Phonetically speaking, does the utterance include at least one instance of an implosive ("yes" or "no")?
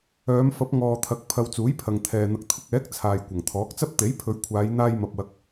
no